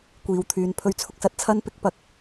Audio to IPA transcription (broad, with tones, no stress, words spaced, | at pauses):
kʷiː˨wt̪ʰyː˨n pʰɵ˨˧ɥt͡sʰʊ˨k̚sɐ˧t̚ t͡sʰɐ˥npɪ˧k̚ pɐ˨˥k̚